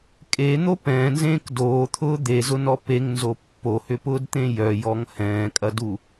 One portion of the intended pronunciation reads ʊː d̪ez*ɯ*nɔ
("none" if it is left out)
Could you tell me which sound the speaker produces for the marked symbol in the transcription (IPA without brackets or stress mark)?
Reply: ʊ